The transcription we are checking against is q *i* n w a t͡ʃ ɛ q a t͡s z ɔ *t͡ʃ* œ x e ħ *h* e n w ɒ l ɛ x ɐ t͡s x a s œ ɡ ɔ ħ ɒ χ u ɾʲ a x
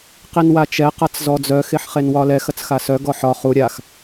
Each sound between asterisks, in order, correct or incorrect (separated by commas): correct, incorrect, incorrect